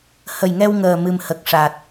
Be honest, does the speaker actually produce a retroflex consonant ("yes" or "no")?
yes